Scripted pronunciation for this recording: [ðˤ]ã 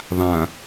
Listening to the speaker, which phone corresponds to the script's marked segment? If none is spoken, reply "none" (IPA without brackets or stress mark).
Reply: ðˤ